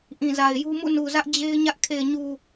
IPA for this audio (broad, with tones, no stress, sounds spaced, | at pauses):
ʔ ĩ˨ z a˨ ɪ̯ j u˦ m ṵ˦˨ n u˨ z ä˦ ʔ d͡ʑ e˦ ɪ̯ ɲ ä˦ ʔ kʰ e˨ ɪ̯ ɲ u˨